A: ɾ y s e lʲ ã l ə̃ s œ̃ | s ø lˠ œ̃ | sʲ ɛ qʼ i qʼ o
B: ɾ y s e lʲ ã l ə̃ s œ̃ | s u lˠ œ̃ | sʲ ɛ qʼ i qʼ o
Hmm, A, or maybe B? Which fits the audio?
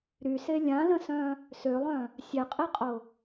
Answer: A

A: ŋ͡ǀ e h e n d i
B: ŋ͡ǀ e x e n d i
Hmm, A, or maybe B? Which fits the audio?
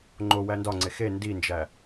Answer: B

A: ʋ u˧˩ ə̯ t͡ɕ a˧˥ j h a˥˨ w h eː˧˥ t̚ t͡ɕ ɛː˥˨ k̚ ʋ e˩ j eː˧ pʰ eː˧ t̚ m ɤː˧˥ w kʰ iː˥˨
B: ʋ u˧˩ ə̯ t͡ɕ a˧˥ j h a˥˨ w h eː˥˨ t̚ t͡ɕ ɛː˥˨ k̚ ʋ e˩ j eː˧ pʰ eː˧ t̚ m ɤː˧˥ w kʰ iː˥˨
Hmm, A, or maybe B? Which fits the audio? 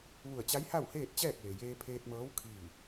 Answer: B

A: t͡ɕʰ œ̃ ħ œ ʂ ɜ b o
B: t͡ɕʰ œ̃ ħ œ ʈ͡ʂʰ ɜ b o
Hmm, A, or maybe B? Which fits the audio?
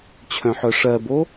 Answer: A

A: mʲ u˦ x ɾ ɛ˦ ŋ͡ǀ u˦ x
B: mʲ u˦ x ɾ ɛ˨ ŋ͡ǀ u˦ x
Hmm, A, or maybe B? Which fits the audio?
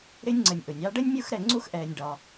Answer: B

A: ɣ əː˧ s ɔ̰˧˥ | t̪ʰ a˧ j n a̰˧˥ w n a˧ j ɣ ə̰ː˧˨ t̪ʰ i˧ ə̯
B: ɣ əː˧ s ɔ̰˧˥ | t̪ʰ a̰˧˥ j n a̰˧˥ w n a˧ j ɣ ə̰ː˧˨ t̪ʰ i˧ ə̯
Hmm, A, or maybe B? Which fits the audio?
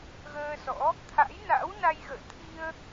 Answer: B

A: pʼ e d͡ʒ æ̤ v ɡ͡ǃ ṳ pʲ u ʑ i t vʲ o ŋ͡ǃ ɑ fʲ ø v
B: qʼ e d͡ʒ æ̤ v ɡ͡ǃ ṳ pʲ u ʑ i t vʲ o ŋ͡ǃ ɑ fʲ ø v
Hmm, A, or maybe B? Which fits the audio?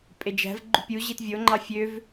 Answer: A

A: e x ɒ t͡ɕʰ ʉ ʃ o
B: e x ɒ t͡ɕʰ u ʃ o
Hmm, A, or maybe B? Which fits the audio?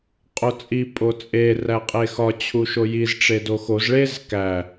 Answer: B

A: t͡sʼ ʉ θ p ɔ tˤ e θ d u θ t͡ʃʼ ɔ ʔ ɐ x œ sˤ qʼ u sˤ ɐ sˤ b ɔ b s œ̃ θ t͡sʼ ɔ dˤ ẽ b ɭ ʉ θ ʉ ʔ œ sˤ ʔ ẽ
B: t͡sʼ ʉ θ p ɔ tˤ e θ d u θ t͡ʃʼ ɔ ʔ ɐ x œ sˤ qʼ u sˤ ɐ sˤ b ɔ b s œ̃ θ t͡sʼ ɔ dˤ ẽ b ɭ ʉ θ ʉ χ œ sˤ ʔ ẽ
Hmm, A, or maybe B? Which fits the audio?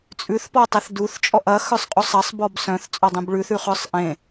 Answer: B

